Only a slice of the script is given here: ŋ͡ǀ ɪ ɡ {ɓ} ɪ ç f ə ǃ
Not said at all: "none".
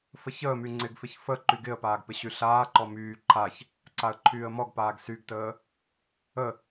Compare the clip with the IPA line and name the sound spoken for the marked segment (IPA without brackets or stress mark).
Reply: f